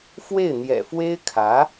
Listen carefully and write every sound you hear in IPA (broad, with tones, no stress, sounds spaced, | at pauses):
f w e˥˩ ɪ̯ n̪ j ɛ̰˨˩ f w e˥ ɪ̯ kʰ ä˧˥